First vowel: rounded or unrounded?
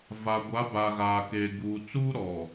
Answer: unrounded